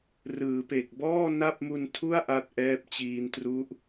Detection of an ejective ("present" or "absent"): absent